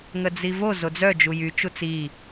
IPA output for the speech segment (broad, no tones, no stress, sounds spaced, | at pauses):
ŋ ə d͡z i v o z o d͡z œ d͡ʒ u j y t͡ʃ u t͡s i